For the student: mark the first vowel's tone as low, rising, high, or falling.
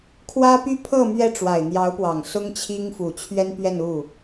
high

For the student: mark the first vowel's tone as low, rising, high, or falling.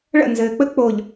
falling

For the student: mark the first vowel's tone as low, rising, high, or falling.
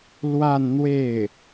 falling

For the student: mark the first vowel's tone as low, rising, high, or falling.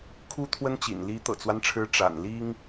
high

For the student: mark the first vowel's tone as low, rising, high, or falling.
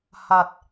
low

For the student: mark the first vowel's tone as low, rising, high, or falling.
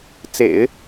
low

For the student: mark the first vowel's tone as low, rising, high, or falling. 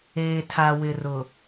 low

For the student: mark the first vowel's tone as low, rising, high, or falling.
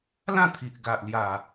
falling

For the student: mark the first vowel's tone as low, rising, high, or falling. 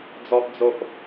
high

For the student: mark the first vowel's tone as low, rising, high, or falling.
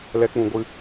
high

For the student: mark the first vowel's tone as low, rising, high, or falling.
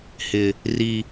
low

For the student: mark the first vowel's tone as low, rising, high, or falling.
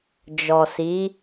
low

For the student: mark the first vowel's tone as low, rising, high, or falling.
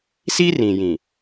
high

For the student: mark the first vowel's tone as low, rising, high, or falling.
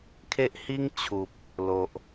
high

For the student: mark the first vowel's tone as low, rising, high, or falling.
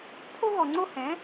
high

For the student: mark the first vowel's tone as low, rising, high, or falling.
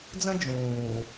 high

